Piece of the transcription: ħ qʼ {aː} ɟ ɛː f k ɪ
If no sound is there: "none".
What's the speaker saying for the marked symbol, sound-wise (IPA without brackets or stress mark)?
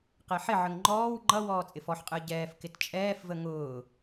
əː